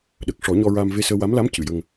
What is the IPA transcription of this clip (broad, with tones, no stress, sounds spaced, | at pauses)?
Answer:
ɗ ə˨˩ k̚ ʂ ɔ˨˩˦ ɲ ɔ˧ ɹ a˧ m v e˧ s əː˧ w a˧˥ m l a˧˥ m c ɨ˨˩˨ j ə˧ ŋ